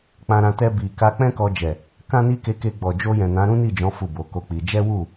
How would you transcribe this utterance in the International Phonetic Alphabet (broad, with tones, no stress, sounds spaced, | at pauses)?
k͡p ã˧ ɾ ã˧ t ɛ˧ b i˨ k a˧ k͡p ɛ̃˦ k ɔ˧ d͡ʒ ɛ˨ | k ã˦ n i˦ k e˧ k e˧ ɡ͡b ɔ˨ d͡ʒ o˧ j ɛ̃˨ n ã˨˦ ɾ ũ˦ n i˦˨ d͡ʒ ɔ̃˨˦ f u˦˨ b o˨˦ k o˦ k͡p i˧ d͡ʒ ɛ˦ w u˦˨